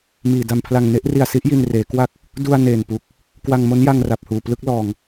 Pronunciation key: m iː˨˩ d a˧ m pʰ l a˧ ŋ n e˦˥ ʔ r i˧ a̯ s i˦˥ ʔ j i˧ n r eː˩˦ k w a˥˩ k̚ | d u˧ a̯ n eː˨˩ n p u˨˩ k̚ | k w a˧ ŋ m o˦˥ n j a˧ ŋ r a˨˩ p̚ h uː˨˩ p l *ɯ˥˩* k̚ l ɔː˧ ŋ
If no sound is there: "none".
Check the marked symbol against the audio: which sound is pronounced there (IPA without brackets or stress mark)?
ɯ˥˩